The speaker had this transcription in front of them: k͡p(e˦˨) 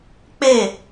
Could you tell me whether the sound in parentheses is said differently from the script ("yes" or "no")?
no